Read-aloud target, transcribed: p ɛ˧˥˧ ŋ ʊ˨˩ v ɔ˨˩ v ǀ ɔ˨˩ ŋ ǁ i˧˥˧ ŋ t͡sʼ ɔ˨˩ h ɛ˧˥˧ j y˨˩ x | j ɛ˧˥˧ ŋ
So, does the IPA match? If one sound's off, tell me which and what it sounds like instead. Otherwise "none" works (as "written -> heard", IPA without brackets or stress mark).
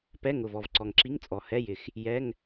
y˨˩ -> ɪ˨˩